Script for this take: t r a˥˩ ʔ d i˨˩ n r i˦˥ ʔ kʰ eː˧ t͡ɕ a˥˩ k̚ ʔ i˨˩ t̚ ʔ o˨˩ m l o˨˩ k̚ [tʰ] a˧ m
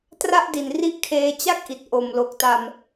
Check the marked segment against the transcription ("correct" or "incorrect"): incorrect